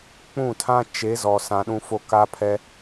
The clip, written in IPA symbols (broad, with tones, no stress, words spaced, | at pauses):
k͡pũ˦˨tʰã˦t͡ʃe˨˦ zɔ˨ sã˨ɗũ˦fo˦ ka˦pʰɛ˦